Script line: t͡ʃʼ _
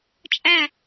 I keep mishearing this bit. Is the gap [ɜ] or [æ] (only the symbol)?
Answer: æ